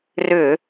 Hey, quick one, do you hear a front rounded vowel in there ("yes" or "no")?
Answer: yes